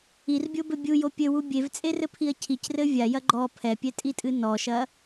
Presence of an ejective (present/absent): present